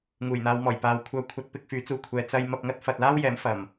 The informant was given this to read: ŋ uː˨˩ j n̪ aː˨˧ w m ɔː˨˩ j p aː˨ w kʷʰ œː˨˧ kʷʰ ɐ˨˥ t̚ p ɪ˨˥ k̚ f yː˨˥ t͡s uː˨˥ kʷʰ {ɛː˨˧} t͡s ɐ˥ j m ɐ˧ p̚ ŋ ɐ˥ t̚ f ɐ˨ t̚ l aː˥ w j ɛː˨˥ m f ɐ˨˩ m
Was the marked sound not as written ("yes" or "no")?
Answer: yes